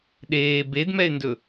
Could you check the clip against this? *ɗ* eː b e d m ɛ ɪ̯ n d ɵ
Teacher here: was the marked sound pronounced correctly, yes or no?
yes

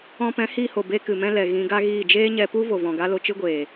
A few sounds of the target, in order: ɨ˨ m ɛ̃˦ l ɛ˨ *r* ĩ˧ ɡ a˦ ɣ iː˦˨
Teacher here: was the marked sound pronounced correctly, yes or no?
no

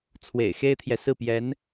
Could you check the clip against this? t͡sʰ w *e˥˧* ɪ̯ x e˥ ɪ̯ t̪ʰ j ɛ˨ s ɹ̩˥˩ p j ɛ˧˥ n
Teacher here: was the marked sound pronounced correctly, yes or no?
no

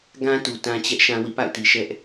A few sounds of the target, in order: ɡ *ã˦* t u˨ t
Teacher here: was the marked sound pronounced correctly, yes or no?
yes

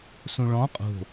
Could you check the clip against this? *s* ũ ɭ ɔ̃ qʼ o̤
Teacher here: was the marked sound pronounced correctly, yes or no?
yes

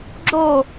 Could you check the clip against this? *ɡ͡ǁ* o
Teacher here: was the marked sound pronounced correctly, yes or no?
yes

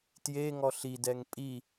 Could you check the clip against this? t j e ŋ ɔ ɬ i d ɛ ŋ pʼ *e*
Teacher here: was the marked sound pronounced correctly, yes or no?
no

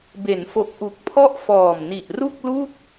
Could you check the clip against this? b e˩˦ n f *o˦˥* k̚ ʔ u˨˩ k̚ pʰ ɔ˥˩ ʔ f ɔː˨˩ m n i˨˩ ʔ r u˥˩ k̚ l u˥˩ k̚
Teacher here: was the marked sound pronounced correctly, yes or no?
no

